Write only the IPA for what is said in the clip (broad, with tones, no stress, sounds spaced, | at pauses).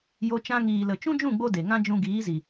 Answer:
j o˦ t͡ʃ ã˧ ŋ iː˨ l ə˨ t͡ʃ ũ˦ d͡ʒ ũ˦˨ ɡ͡b o˧ d e˨ ŋ ã˦ d͡ʒ ũ˧ ɡ iː˨˦ z i˨